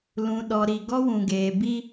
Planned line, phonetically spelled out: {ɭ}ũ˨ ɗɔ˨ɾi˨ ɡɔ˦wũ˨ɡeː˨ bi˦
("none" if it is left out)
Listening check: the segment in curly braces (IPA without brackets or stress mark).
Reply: l